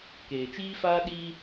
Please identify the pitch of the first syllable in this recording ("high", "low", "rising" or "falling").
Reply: low